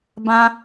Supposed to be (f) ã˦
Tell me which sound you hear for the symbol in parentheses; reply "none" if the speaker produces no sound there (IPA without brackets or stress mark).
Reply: b